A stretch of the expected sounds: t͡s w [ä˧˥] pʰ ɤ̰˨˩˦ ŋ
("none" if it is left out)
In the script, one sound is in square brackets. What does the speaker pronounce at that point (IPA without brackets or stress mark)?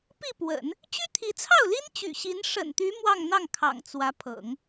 ä˧˥